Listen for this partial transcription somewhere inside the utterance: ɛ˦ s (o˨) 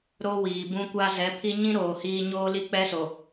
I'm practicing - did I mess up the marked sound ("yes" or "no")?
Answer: no